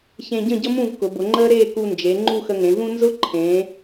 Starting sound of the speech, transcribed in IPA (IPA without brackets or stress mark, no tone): ç